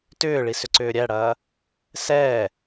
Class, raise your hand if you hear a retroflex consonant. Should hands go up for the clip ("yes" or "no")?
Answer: yes